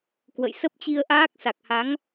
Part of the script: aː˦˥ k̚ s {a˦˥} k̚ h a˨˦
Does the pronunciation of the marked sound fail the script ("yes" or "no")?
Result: yes